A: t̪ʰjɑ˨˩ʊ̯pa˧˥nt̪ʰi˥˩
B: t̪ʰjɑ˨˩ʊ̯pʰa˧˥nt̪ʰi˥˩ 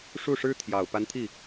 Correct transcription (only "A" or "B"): A